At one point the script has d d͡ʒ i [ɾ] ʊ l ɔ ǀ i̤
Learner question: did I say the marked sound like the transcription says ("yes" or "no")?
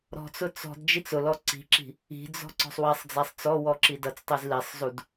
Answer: no